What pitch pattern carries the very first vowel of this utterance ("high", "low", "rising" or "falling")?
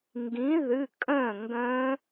rising